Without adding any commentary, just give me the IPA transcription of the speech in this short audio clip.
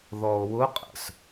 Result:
ðɔo̯wʊqʼə̰s

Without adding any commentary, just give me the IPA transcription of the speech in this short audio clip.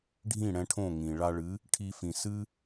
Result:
ɖʱĩ˥˩ɽɛ̃˧ʈʰõ˥˩ ŋĩ˩ɭa˧ɭɨ˩˥ | ʈʰi˧fĩ˩sɨ˥

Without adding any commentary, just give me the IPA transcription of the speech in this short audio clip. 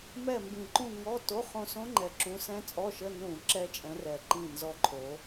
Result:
mɛ˦˨ mbĩ˨˩ǃũ˦˨ ŋɔ˧˥˧ to˧˥˧χõ˦˨ sõ˦˥ŋ͡ǃɛ˨˩ ǁũ˨˦sɛ̃˦˥t͡sʼɔ˧˥˧ʃə˧˥˧ nũ˧˩˧ ǁɛ˦˥t͡ʃʼɛ̃˨˦rɛ˨˩ǃĩ˦˨ nzɔ˦˨ǃʰo˨˦

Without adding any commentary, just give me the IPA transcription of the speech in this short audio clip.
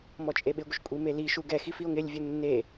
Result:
mɔt͡ʃʼeɓɪɡʷɪʃ kʷʼimeliʃu ɡɛxif io̯ŋɪlʲvʲʊ nːe

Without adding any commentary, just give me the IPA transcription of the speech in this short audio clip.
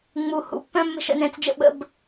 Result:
ŋ͡mu˩hṵ˩˧ pːœ̃˦mːə̤˦˨ʃə̰˩˧nɛ̃˩˧t͡s d͡ʒə̰˦˨ɓə̰˩˧b

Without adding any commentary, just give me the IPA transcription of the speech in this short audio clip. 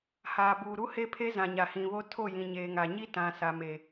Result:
haː˨buː˨ ɾu˦he˦pʰe˦ zã˨ɲa˨ hĩ˨βo˦ tʰo˦˨jĩ˨ɲeː˨ŋa˨ ɲi˦ tã˨sa˨me˨

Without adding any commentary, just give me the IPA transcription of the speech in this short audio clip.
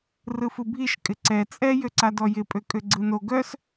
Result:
rɯfɯbʱiʃ kʼɪǀɛ t͡sʼɛ jøǀadɔjɪ pʼøkʼøɡ͡ǀɯno ɡœs

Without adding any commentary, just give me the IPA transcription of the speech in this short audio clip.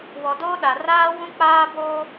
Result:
wɔ˨doː˦ɗa˨ raː˦ wũ˦k͡paː˦boː˦

